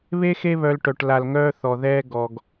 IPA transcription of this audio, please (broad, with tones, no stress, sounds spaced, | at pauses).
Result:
β e˦ x e˦ β œ˧ l ʈ œ˨ ʈ l a˨ l ŋ œː˧ θ ɔ˨ ð ɛː˧ ɡ ɔ˨ ɡ